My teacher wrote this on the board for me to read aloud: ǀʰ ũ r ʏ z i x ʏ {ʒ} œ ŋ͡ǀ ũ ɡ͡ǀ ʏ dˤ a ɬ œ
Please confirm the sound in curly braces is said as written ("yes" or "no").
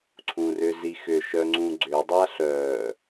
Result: no